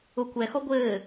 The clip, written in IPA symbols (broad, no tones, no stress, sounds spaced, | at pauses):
ʊ kʷ ɛ x ɔ ɡʷ ɘː